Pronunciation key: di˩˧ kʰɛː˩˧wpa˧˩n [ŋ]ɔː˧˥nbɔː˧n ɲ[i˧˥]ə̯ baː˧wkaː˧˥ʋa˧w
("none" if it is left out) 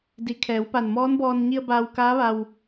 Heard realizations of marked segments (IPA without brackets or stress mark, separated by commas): m, i˧